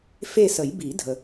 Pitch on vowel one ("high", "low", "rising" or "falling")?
falling